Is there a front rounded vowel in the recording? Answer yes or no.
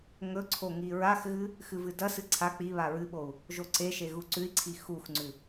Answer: no